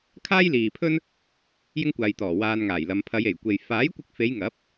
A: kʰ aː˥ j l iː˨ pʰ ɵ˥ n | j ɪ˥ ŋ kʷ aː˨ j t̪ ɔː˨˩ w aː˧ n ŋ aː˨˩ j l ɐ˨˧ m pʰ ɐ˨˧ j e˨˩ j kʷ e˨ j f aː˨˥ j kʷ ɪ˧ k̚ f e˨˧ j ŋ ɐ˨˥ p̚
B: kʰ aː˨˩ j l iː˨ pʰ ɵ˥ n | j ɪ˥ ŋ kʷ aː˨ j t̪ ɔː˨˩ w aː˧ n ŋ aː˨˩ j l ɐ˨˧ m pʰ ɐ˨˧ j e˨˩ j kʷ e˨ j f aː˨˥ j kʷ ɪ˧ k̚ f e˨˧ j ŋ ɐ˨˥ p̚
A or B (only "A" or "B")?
A